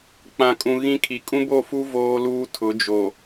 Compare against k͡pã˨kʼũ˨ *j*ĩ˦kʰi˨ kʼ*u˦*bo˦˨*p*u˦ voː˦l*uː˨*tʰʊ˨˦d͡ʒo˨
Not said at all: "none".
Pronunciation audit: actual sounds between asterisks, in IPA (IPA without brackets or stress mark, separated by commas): ɣ, ũ˦, f, uː˦